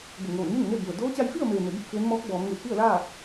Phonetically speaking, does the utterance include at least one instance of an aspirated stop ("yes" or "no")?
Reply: no